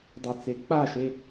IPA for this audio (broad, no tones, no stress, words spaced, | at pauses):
dˤet͡se k͡paʃe